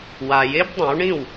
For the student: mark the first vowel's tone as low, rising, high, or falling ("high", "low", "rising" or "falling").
low